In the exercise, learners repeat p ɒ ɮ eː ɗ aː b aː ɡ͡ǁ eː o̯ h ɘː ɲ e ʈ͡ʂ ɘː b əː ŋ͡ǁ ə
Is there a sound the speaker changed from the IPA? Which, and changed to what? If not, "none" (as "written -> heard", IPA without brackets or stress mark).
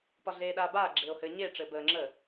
none